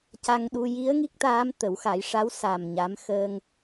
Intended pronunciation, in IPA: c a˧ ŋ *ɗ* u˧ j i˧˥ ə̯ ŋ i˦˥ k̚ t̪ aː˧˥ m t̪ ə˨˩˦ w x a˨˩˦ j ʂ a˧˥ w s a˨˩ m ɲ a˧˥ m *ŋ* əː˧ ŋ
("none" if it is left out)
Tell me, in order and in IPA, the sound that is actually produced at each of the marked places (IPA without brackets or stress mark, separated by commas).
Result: ɗ, x